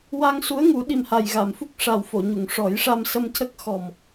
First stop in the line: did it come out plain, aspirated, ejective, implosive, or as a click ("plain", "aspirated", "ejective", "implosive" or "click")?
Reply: implosive